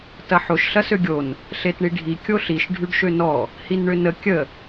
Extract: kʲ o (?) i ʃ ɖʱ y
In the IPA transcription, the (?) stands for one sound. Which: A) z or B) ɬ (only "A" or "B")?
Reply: B